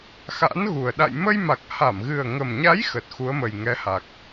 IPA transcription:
x a̰˧˥ n ɣ u˨˩ ə̯ ɗ a̰˧˨ j m ə˧ j m a˨˩ k̚ h a˧˩ m ɣ ɨ˨˩ ə̯ ŋ ə˨˩ m ɲ a˨˦ j x ə˨˩ t̚ x u˨˦ ə̯ m ə˨˩ j ŋ ɛ˨˦ h a˨˩ k̚

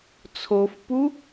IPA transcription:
t͡sʰ o f p u

